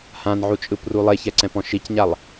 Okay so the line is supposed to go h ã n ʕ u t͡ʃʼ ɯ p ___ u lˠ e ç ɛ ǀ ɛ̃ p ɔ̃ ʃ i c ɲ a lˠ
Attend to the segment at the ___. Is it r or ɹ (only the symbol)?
r